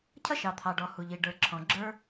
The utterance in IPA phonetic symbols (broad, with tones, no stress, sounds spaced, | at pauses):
cʰ ʌ˥ ʃ ɑ˩ t̪ʰ ɑ˩ ɖ ɔ˩ h u˩ ʎ i˩ ɖ ə˞˩ ǁʰ ɔ̃˩ ɡ͡ǁ ə˞˥